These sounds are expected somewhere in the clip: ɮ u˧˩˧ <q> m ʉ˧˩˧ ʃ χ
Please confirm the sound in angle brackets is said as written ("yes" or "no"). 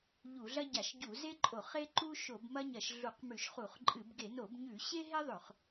yes